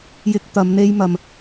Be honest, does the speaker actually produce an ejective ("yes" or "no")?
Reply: no